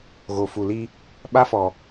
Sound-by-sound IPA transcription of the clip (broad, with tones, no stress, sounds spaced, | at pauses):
ɣ o˨ f u˨ l i˦ | ɓ a˦ f ɔ˨